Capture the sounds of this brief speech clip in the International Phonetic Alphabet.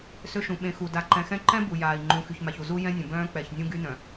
s ø˦ ʃ ũ˨ ɓ ẽ˨ x u˨ d a˨ ǃ ɛ̃˨ x ɛ̃˦ ǃ ɛ̃˦ b u˨ j aː˨ i̯ ŋ͡ǃ ũ˨ x y˨ ç m a˨ ç u˨ z u˦ j ɛ̃˦ nʲ ə̃˨ b œ̃ː˦ k͡p ɛ˨ ç nʲ ũ˦ ɡ y˦ n œ̃˨

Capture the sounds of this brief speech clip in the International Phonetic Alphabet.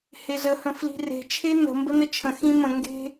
h e z ə h ə̃ f l i̤ r e̤ t͡ʃʰ e n ə̤ m b ə n ə t͡ʃʰ ə̃ x ĩ m ə̃ ŋ ɡ e̤

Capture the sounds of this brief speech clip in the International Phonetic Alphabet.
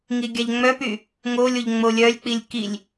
ŋ i ɡʲ a ʎ ŋ͡m œ p y | ŋ o lʲ o ʎ ŋ͡m o lʲ œ lʲ k͡p i lʲ k i lʲ

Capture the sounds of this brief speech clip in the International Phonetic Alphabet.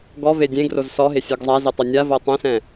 ɡ ɔ v e dʲ ẽ ɡ r o z s ɔ ɦ e sʲ ɤ ɡ zˤ a z e tˤ o nʲ a v ɤ tˤ ɛ̃ s ɛ̃

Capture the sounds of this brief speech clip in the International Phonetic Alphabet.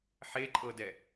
ħ e ǃʼ ɤ d ɛ

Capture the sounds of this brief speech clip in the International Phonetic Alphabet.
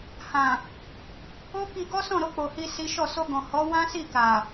h ã˨ | o˦ k i˧ ɡ ɔ˦ s ɔ̃˦˨ ɾ o˧ k͡p o˨ h i˧ s i˦ ʃ ɔ˦˨ s o˧ ɡ ɔ̃˨ h ɔ˨˦ w ã˦ s i˦˨ k a˨

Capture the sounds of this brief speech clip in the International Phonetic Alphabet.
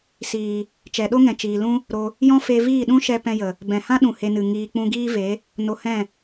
s iː˨ | t͡ʃ ɛ˨ ɗ o˦ ŋ ɛ̃˨ t͡ʃ iː˨ l ũ˦ | ɾ o˧ | j ɔ̃˦ f e˧ v iː˦˨ ɗ ũ˦ ʃ ɛ˧ p ɛ̃˧ j ə˨ | b ɛ̃˨ h ã˦ ɗ ũ˨ h e˧ n ɨ˨ ŋ iː˨ k͡p ũ˧ ɡ iː˦ v e˨˦ | n o˧ h ɛ̃˦˨

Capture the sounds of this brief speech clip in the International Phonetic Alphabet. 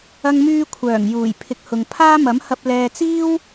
ɐ˧ ŋ m yː˧ kʷʰ œː˨˩ ŋ j uː˨˩ j pʰ ɪ˨˥ k̚ h ʊ˨ ŋ pʰ aː˥ m ɐ˨˥ m h ɐ˧ p̚ l ɛː˨ t͡s iː˥ w

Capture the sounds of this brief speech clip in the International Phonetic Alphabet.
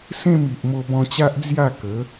s ẽ˥˧ m i˨ ʔ m o˧ b ɔ̃˧ t͡ɕ a˦ ʔ d͡z j a˥˧ k ə˨˦

